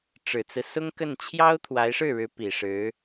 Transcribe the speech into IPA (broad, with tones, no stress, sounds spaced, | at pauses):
ʈ͡ʂ ɻ̩˨˩ t͡s ɹ̩˦ s ʊ˥ ŋ k ə˥˩ n t͡ɕʰ j ɑ˥ ʊ̯ t̪ʰ w a˧˥ ɪ̯ ʂ ɻ̩˥˩ ɻ ɻ̩˧˥ p i˨˩ ʂ ɻ̩˧˥